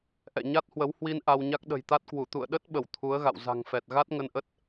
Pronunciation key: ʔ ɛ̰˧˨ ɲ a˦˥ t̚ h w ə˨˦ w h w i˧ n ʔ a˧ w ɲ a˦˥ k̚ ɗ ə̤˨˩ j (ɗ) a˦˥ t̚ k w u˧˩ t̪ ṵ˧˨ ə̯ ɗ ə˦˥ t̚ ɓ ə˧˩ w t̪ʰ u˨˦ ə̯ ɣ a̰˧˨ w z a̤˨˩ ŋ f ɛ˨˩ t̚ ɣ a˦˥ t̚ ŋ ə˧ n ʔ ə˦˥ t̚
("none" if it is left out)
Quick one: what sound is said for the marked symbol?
t̪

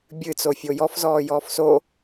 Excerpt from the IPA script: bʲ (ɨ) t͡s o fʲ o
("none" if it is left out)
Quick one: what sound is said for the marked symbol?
ɨ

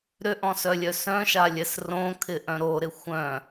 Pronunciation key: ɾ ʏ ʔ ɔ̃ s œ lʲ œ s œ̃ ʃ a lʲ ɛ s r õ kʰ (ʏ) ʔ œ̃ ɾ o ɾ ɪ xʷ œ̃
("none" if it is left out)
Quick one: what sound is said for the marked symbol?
ɪ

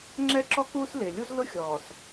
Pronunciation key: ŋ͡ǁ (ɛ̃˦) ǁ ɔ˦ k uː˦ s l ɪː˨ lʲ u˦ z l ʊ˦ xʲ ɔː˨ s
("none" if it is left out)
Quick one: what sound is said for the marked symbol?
ɛ˦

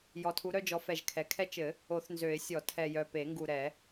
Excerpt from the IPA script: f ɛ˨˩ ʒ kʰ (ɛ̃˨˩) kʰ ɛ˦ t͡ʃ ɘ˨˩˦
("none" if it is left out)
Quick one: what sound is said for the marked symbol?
ɛ˨˩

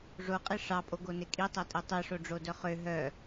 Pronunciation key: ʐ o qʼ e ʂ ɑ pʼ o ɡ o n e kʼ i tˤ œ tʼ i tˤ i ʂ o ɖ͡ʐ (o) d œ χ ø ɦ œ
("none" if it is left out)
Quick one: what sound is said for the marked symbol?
o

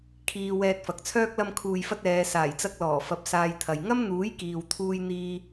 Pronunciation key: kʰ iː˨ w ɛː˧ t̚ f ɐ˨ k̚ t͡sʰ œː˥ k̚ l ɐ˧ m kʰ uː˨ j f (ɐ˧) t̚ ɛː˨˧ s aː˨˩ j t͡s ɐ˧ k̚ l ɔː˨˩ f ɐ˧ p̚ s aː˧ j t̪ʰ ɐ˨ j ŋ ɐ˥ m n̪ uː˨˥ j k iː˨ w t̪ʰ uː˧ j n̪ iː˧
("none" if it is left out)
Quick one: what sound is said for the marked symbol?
ɐ˧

